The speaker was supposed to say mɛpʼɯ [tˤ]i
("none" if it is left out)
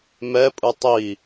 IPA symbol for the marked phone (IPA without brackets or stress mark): tˤ